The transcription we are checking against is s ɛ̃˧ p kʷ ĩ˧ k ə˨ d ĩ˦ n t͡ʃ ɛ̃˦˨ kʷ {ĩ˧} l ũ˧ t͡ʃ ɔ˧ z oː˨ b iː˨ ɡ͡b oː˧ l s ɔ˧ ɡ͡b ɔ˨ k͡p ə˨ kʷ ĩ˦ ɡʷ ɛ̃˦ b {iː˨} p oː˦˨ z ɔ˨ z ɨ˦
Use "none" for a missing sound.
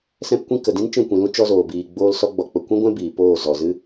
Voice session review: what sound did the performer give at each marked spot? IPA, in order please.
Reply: ĩ˨, iː˨

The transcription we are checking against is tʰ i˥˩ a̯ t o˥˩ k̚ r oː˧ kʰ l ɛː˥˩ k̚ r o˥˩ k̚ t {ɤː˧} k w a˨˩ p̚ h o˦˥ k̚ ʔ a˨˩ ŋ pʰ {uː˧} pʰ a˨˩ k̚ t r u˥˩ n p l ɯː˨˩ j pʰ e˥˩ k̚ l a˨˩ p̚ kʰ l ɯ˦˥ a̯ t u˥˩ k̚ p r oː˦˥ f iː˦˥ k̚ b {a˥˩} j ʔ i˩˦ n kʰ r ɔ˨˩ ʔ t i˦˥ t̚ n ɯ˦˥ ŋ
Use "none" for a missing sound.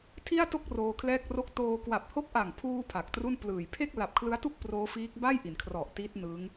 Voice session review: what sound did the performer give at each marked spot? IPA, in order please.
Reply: oː˧, uː˧, a˥˩

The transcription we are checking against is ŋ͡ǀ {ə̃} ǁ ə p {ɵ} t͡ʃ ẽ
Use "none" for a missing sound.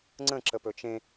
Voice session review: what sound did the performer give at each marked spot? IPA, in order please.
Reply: ə̃, ɵ

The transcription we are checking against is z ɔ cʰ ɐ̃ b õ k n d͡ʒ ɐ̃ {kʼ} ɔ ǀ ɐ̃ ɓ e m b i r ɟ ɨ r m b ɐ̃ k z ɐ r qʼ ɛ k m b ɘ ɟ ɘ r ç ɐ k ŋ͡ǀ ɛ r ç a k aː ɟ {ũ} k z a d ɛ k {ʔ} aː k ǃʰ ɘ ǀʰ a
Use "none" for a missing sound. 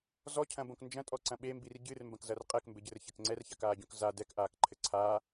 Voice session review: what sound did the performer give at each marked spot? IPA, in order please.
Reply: tʼ, õ, ʔ

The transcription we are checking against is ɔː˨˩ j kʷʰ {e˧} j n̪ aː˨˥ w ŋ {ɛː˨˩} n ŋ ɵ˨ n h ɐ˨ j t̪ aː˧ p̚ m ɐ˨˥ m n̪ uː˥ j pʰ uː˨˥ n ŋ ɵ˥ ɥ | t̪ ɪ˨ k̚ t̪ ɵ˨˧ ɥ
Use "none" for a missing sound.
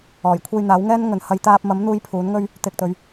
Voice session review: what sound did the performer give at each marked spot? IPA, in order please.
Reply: e˧, ɛː˥

